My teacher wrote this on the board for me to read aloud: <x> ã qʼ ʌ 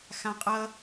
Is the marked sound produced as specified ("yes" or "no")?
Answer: yes